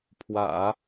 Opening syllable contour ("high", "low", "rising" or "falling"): low